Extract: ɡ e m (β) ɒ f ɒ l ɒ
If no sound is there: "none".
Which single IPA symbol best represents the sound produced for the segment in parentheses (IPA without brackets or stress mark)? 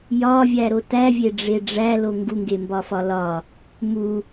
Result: b